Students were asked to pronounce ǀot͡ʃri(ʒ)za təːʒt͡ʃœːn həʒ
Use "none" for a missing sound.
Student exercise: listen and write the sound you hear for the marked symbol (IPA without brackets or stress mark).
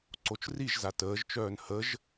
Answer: ʒ